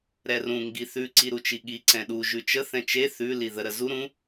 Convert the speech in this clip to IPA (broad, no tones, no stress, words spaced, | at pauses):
ɾɛrũ ŋɡiθʉ ǀiɾut͡ʃiɠi ǀɛ̃ɗu ʒʉt͡ʃə θɛ̃t͡ʃe θʉ liðə ɾəzu ɾũ